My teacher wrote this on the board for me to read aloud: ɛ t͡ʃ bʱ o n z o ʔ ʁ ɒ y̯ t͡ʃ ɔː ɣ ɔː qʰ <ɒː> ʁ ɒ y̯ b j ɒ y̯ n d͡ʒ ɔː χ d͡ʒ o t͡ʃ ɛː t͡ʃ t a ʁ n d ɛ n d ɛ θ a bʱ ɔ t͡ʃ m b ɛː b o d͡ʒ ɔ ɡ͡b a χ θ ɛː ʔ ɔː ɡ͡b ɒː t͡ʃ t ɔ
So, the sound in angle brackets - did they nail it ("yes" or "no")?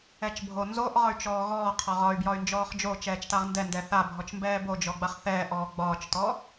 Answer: no